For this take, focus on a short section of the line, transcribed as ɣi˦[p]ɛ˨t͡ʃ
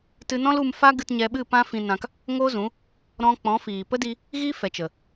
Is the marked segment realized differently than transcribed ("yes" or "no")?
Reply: yes